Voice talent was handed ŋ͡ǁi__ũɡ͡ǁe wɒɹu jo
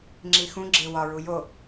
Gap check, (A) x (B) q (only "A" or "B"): A